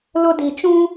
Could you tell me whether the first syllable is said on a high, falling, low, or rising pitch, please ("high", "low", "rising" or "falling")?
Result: high